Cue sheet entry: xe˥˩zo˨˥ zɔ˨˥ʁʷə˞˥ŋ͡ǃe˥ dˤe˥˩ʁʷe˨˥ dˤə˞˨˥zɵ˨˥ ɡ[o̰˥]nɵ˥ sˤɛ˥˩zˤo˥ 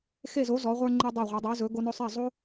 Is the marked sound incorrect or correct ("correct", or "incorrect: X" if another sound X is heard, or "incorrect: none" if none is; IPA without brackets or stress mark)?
incorrect: o˥